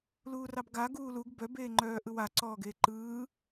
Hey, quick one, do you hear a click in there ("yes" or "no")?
yes